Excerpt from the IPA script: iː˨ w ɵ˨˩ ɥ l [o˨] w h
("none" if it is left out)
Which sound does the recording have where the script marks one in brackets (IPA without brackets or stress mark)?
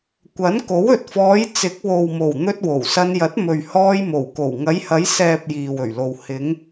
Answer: o˨